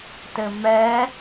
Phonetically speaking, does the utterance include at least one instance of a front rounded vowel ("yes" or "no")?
no